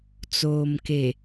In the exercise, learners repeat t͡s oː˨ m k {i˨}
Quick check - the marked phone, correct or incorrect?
incorrect